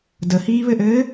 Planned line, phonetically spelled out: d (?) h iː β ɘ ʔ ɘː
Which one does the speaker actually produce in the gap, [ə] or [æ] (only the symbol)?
ə